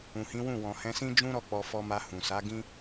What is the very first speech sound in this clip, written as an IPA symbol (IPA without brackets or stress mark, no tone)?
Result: ũ